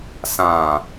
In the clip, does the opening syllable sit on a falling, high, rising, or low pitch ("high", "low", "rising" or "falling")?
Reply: low